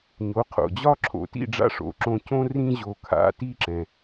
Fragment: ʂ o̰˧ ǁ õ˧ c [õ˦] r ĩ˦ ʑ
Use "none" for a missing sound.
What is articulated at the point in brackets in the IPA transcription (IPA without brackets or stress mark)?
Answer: õ˦